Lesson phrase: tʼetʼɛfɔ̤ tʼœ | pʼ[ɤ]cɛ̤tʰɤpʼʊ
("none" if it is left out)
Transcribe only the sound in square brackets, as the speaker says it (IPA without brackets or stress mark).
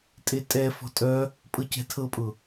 ɤ